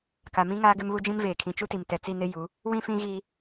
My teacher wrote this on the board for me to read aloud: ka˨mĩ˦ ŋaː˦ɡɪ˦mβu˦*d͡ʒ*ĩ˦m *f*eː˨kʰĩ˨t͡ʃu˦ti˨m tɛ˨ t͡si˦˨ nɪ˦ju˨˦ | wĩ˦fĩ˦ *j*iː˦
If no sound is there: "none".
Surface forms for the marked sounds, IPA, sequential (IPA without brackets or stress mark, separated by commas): d͡ʒ, v, ɣ